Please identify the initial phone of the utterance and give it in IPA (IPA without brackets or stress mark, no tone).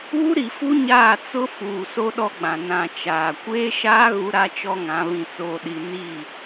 uː